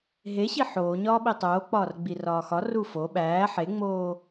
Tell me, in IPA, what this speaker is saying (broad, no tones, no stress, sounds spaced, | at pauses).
ɦ e ɕ i ħ oː ɲ ɒː ɓ i tˤ oː k͡p ɒː r ɡ͡b i r ɒː x ɒ r u f o ɓ æː ħ e ŋ͡m oː